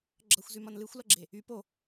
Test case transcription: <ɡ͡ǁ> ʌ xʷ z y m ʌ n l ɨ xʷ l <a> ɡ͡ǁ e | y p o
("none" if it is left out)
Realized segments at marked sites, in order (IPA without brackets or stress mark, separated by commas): ɡ͡ǁ, ʌ